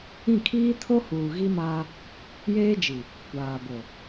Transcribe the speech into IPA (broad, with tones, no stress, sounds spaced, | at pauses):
ĩ˦˨ kʰ iː˦ tʰ o˦ h uː˨ ɣ i˦ m aː˦ | j eː˦ d͡ʒ i˨ | kʷ aː˨ b o˨